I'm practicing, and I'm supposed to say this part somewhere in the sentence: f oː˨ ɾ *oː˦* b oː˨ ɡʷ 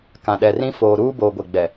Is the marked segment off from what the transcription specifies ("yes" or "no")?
yes